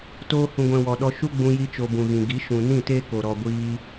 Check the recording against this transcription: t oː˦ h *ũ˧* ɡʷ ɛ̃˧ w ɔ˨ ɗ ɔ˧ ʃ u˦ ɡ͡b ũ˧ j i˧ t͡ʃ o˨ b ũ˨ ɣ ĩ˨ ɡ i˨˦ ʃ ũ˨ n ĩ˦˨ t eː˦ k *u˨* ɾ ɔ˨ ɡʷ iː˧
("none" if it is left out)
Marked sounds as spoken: ũ˧, o˨

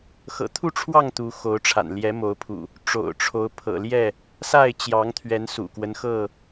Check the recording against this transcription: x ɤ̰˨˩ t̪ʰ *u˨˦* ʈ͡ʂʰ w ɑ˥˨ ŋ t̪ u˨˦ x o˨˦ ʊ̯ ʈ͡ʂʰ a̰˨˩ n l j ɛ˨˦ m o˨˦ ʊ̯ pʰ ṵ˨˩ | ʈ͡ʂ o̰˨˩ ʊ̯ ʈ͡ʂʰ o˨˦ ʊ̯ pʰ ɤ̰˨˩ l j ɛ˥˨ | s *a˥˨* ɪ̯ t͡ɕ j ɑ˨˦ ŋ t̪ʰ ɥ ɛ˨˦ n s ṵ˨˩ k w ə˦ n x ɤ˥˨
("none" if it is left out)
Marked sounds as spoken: u˥˨, a˥˨

